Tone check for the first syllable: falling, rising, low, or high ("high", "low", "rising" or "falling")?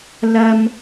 high